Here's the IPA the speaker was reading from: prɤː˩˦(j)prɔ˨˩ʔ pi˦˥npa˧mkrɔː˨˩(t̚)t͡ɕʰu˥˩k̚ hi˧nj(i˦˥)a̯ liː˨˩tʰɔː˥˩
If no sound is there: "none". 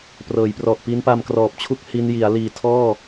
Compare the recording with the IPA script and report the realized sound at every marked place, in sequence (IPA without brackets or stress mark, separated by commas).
j, p̚, i˩˦